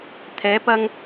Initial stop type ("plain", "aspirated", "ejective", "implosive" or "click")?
aspirated